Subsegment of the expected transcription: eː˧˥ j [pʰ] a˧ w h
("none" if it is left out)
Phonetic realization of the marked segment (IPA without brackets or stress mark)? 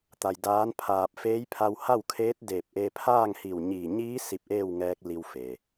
pʰ